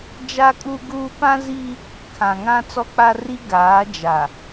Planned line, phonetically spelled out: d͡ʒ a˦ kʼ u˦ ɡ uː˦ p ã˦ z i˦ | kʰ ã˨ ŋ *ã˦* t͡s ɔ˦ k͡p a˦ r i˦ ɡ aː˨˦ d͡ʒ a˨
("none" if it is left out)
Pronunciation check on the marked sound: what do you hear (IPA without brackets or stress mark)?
ã˦